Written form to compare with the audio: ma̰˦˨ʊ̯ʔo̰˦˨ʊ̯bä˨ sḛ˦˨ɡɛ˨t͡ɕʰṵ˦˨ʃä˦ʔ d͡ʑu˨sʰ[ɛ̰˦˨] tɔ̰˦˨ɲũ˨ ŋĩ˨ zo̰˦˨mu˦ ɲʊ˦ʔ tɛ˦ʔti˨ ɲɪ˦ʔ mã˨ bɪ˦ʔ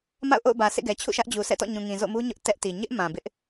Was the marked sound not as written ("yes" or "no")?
no